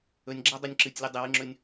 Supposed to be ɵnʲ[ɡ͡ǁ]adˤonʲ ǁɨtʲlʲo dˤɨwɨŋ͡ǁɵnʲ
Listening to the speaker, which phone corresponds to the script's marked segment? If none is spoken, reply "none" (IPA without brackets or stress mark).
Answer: ɡ͡ǁ